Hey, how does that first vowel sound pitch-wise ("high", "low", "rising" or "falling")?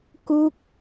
falling